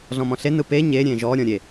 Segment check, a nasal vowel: present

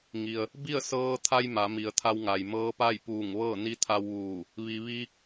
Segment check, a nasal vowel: absent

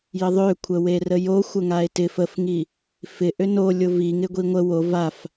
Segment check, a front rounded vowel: present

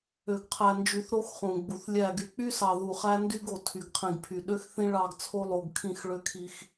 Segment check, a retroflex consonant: present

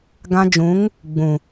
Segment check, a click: absent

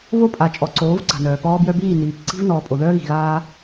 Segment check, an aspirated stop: absent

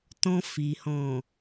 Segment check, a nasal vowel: present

